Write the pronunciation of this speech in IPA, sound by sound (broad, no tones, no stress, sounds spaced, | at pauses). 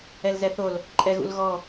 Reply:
ɛ l z ɛ θ o l | ǃʼ ɛ ɣ ṵ l ɣ ɔ